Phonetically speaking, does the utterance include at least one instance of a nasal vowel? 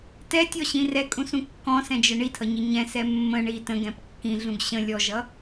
yes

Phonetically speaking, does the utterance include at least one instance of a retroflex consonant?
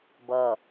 no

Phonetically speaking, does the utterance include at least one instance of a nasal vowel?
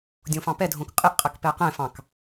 yes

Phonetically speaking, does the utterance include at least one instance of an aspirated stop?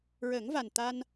no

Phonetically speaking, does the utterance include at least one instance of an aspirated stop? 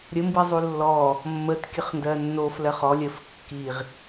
no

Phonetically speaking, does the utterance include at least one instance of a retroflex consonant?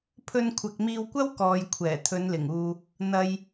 no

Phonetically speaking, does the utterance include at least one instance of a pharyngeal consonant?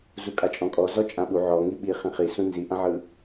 yes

